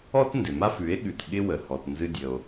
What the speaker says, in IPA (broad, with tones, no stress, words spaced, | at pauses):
ɔ˥tndɪ˩ma˥f ʉ˩˥e̯ɠʉ˩t ɠɪ˧wə˩ hɔ˩tnzɨ˧dʲə˩o̯